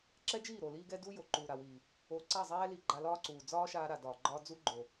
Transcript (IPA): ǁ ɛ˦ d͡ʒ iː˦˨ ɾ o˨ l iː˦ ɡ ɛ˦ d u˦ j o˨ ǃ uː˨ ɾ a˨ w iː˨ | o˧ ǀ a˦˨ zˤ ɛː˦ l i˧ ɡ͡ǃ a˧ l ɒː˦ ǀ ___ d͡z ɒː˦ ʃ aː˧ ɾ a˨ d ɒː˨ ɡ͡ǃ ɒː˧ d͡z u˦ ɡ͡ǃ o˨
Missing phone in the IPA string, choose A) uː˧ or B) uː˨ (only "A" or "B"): B